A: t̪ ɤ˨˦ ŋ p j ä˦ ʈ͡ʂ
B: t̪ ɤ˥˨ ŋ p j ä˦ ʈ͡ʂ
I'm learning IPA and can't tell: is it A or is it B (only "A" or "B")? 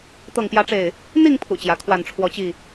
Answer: B